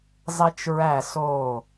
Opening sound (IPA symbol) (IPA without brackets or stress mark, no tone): zˤ